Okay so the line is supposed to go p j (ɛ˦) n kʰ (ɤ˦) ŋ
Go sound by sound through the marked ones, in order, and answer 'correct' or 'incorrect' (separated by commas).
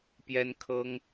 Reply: correct, correct